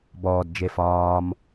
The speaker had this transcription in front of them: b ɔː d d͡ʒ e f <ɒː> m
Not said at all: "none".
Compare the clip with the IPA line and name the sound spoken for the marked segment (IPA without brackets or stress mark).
ɒː